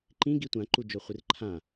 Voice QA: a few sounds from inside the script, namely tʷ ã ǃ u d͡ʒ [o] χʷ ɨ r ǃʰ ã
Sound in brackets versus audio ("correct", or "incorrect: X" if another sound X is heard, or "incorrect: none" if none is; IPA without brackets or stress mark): correct